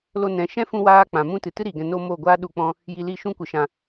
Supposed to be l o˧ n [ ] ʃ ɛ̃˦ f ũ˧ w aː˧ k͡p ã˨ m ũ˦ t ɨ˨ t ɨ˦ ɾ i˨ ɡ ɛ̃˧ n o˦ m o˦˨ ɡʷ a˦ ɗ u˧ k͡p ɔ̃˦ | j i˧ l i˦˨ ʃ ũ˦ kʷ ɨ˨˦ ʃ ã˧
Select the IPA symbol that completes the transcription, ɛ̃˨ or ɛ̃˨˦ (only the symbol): ɛ̃˨˦